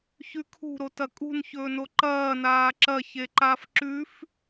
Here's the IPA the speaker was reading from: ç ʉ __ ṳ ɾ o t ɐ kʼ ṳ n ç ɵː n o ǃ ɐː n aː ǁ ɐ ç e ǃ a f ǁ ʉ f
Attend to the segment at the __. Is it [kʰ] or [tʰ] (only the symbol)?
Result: kʰ